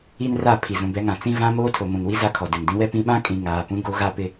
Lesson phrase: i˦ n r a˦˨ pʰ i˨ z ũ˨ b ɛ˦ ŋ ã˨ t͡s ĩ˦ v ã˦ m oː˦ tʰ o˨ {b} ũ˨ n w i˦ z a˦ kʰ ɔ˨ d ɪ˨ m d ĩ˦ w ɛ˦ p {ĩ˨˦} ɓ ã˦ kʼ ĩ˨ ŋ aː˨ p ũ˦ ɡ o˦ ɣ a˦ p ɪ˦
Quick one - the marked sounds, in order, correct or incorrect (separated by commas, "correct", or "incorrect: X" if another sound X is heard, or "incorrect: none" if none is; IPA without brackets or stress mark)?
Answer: incorrect: m, correct